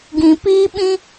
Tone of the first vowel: low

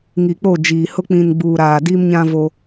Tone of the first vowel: low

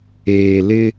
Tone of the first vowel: low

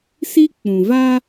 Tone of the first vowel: high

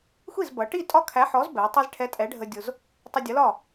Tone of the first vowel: falling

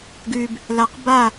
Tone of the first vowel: low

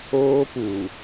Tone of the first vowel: high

